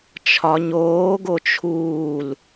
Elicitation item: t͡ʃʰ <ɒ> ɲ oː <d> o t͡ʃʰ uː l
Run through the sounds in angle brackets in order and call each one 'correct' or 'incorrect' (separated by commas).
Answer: correct, incorrect